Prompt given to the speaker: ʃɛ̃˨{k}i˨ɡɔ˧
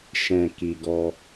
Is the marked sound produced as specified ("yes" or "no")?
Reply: yes